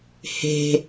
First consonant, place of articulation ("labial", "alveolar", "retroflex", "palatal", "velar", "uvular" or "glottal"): glottal